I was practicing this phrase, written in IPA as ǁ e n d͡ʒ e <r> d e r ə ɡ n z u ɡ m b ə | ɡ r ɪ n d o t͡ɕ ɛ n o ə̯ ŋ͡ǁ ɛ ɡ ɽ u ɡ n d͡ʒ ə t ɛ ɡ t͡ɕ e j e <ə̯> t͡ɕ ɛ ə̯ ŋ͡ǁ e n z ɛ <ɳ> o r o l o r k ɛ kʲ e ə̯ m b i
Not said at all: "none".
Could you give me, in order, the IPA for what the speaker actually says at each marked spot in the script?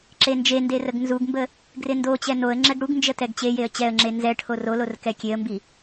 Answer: n, ə̯, ʈʰ

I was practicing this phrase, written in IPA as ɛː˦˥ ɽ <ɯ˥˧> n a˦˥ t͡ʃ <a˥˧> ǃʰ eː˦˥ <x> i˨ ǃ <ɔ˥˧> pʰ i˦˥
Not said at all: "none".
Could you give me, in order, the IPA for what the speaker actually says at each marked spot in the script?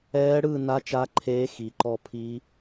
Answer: ɯ˥˧, a˦˥, x, ɔ˥˧

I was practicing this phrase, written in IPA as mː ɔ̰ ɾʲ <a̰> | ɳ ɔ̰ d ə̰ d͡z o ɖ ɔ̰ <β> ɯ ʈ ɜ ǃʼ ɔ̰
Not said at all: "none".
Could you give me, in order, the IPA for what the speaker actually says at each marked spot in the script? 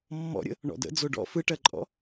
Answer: ə̰, f

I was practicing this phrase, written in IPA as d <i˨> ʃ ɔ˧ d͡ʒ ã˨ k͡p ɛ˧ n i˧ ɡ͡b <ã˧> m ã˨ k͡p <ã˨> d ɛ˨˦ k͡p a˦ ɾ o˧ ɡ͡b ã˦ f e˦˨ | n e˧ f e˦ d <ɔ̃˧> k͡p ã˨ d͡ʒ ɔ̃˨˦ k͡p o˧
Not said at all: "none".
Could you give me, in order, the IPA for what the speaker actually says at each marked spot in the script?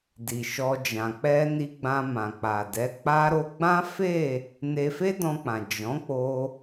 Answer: i˨, ã˧, a˨, ɔ̃˧

